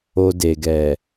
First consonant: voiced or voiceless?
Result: voiced